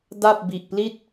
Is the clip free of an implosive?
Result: yes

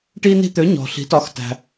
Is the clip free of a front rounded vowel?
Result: no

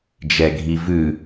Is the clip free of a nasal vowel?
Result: yes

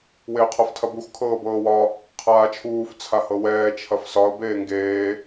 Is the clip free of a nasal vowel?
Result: yes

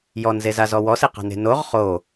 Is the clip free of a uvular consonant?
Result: no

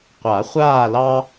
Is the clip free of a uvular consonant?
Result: no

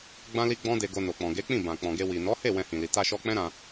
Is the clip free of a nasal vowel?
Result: no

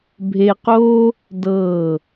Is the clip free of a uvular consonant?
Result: no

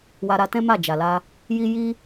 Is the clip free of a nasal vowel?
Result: no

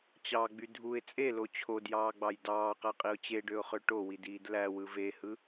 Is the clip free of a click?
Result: yes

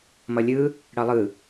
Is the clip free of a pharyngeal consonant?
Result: yes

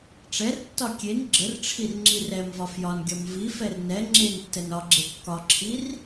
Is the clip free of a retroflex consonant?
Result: no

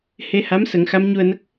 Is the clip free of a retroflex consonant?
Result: yes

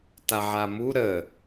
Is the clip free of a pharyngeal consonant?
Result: no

